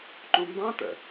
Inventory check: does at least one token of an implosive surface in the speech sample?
no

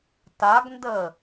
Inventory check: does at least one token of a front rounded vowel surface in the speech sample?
no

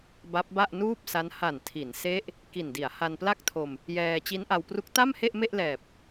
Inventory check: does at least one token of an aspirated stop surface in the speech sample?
yes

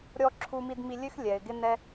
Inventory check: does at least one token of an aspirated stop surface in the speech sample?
yes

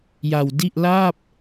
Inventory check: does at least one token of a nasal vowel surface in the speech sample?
no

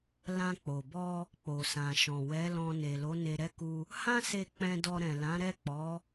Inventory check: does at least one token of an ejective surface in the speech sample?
no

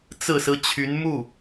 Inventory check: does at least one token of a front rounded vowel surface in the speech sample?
yes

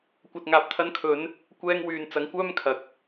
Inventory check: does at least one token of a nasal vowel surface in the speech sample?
no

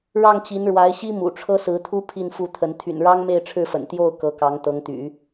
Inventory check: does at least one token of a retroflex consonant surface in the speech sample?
yes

